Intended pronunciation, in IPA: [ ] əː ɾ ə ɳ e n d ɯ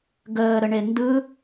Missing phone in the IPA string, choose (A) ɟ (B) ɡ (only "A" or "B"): B